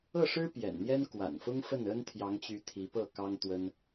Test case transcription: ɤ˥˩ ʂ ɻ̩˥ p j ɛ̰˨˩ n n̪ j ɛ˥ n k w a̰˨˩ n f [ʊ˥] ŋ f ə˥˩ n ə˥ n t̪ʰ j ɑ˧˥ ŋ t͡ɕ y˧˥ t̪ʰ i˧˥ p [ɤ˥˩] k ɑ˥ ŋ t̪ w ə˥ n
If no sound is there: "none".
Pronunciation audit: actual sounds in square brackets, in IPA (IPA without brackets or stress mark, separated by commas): ʊ˥, ɤ˥˩